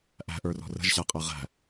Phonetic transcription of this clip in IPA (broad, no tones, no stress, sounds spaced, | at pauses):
ʔ æ̤ ʔ ə˞ r ɔ̤ r ə̤ ʒ ɕ æ qʼ æ ʁ æ̤